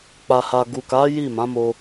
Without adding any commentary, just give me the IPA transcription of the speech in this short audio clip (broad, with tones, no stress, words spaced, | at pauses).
k͡pa˨ha˨ɡu˨ka˨˦ ji˦˨mã˨˦mo˧